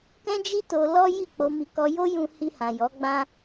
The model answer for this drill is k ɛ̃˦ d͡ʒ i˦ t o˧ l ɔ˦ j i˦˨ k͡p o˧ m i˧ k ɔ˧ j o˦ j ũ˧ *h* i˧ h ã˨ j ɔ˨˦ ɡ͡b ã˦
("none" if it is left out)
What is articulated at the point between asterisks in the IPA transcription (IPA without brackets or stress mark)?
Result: h